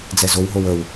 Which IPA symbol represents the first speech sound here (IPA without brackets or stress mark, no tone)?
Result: d͡z